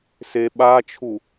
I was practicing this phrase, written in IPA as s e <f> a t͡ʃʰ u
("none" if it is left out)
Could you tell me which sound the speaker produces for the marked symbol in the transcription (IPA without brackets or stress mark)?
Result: ɓ